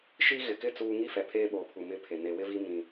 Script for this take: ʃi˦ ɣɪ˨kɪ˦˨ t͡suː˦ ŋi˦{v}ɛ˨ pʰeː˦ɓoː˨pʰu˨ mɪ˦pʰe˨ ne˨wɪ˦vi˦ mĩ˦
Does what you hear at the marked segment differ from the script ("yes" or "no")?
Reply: yes